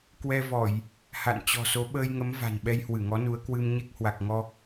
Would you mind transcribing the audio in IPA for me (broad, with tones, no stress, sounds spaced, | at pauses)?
k w ɛ˧ v ɔ˧˩˨ j | h a̰˧˨ n t͡ɕ ɔ̤˨˩ s o˨˦ ɓ əː˧ j ŋ ə˨˦ m v a̤˨˩ n ɓ ɛ˧ j h w ɨ˧˩ ŋ ɔ˨˦ n u˨˦ ə̯ k w ɨ˧ m ɲ e˦˥ k̚ h w a˨˩ k̚ ŋ ɔ˧